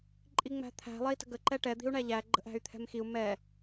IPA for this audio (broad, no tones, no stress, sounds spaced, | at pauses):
ǃʼ i ŋ͡m æ̤ t̪ʰ æ̤ lˠ ɛ i̯ t ə̤ ɡ ə ǃ ɛ ʈ ɛ d̪ i̤ u̯ ɳ æ ʎ æ ɡ͡ǃ ə̤ ʔ æ̤ y̯ t̪ʰ ɛ̤ m x i u̯ m ɛ